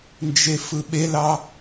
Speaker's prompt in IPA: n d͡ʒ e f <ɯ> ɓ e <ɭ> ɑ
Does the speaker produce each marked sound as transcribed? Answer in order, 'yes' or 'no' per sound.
yes, no

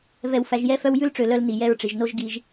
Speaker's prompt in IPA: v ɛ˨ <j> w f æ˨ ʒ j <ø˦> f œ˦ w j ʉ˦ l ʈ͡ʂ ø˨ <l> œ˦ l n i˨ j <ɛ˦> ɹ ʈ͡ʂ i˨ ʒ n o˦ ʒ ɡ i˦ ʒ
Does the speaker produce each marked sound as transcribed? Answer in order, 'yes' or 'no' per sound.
no, no, yes, yes

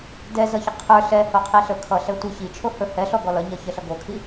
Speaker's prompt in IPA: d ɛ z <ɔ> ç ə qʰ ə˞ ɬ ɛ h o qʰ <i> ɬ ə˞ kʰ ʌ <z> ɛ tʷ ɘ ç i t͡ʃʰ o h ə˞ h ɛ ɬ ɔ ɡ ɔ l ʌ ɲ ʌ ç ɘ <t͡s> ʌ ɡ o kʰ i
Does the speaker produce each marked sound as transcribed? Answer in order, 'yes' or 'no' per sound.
no, yes, no, no

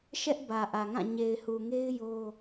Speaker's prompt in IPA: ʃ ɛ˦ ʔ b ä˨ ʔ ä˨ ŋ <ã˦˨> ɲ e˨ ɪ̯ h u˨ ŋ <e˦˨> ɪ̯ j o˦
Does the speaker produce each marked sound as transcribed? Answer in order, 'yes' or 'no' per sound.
yes, no

